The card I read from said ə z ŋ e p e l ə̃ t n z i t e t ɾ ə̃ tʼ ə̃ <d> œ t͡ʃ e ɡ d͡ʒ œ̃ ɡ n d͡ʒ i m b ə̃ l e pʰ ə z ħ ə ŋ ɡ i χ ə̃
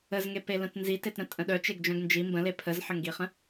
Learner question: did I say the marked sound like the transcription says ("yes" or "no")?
no